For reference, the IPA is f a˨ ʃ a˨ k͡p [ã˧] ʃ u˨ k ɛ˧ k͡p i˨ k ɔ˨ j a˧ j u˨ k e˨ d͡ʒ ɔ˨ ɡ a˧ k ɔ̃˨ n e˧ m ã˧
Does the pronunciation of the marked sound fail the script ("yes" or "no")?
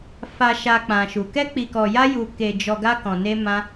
yes